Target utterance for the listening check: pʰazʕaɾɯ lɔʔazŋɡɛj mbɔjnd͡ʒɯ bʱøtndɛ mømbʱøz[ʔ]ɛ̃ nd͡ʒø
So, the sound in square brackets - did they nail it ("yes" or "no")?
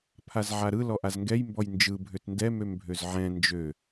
no